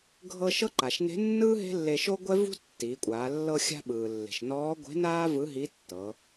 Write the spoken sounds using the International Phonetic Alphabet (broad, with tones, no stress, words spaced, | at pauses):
ɡʱɤ˧ ʃɤ˥ǃa˩ʃ ne̤˧˥nːɯː˥ ɦe̤˥lːe˧ ʃo˥ɡʷɛ˥vṳ˥ tːiː˩˧kʷʼaː˩˧ lːɤ˧xʲa̤˧ ɓɯː˩lːe̤˩ʃnɔː˧˥ ɡʷe̤˧˥naː˥ vɯ˧˥ɦi˧˥tːɤ˩˧